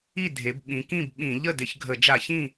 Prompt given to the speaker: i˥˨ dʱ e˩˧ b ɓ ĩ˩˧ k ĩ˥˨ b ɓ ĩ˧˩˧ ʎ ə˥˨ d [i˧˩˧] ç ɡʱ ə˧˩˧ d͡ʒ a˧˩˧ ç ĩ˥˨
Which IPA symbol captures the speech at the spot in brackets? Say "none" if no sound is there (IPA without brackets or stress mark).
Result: ɪ˧˩˧